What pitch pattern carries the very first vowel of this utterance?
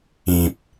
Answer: low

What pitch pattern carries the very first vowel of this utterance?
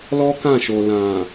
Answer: high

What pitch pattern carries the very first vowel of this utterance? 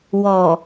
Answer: low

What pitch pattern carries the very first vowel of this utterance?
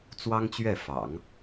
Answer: high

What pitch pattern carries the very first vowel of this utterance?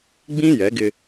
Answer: high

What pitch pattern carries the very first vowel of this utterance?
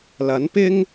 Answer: rising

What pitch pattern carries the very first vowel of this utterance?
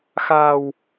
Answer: low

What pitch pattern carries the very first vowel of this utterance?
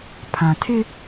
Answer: low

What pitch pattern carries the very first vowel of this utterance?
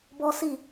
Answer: high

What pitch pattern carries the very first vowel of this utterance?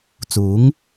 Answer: rising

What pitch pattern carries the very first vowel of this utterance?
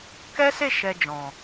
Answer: high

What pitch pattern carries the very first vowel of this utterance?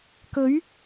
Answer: rising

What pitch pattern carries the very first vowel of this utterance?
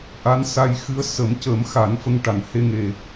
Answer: rising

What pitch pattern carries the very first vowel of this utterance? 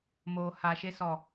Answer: low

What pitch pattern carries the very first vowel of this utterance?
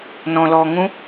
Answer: low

